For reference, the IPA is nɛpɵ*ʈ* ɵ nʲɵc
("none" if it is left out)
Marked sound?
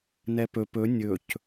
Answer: p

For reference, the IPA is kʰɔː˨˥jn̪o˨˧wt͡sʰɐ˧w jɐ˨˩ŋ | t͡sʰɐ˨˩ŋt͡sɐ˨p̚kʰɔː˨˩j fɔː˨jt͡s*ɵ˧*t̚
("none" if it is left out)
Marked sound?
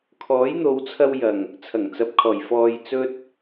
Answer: ɵ˧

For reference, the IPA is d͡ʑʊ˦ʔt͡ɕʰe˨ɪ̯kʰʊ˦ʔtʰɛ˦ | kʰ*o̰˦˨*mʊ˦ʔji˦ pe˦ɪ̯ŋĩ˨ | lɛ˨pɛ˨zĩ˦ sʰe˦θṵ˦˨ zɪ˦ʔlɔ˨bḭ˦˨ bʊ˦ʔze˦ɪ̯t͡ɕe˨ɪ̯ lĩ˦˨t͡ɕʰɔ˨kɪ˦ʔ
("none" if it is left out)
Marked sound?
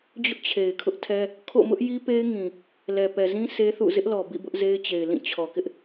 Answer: o̰˦˨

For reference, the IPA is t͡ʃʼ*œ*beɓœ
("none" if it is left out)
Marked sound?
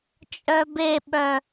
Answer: œ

